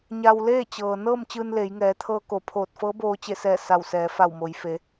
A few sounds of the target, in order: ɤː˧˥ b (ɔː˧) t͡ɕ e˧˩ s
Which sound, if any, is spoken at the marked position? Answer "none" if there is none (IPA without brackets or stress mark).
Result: oː˧